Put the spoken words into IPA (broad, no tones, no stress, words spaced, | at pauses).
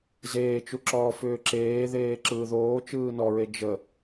zeːt͡ʃuǁɔː fʏːǁeːðeː ǁɯːðoː t͡ʃɯːnɔɹe d͡ʒə